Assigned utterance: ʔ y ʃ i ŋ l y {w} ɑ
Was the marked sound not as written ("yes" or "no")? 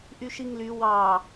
no